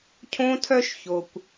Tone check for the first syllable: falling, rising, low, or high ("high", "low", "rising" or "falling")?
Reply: high